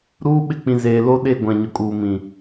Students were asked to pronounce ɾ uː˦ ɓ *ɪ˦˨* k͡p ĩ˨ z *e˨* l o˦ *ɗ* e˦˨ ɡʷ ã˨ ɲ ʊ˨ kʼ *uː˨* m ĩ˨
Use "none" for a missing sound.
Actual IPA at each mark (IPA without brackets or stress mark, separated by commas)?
ɪ˦˨, eː˨, ɗ, uː˨